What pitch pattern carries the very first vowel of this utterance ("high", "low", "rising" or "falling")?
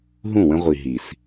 falling